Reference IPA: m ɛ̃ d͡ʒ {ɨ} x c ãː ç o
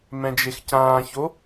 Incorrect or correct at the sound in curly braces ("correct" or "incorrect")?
incorrect